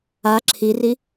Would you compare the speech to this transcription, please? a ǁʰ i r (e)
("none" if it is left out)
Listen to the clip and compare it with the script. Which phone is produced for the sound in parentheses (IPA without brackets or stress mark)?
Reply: i